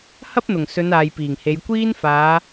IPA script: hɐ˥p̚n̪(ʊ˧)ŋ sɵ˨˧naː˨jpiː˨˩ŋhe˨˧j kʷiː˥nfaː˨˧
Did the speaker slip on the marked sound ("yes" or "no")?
yes